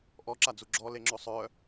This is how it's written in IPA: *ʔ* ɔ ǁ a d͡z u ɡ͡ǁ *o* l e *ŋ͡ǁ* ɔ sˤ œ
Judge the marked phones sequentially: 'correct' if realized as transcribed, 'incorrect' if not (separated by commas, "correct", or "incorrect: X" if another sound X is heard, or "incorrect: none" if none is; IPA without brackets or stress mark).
correct, incorrect: ɔ, correct